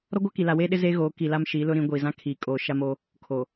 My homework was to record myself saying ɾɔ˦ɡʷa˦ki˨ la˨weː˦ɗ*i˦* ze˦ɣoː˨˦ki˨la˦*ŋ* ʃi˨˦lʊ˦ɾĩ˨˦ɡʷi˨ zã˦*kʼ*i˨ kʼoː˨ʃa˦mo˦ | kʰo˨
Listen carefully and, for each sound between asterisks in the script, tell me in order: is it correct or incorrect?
incorrect: ɪ˦, incorrect: m, incorrect: kʰ

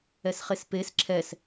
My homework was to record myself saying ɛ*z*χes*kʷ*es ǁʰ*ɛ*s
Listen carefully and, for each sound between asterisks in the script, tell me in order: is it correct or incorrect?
incorrect: s, incorrect: p, correct

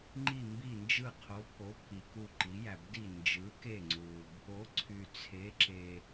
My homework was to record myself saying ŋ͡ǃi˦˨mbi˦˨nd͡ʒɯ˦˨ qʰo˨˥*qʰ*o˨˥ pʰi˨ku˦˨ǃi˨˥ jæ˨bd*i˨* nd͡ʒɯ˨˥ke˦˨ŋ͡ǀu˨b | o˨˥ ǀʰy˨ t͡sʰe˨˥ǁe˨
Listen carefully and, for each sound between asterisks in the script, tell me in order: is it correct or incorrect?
incorrect: pʰ, incorrect: i˦˨

